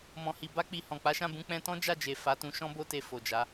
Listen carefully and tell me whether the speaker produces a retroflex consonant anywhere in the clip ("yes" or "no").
no